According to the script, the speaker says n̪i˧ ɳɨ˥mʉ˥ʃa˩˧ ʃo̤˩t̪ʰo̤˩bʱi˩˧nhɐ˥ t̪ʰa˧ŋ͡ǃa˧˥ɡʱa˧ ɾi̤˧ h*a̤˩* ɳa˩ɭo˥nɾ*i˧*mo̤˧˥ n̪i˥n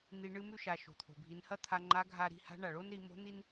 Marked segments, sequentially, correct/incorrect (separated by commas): incorrect, incorrect